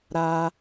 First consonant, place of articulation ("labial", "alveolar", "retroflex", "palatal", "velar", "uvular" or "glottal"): alveolar